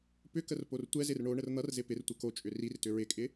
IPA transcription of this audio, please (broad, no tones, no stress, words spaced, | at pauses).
pʏkər portʷɛzɪr ɳo ɳərn̪ʌrzɪ pɪrtʷɘ kot͡ʃʼʏ rirtʏ ɹɪkʼɪ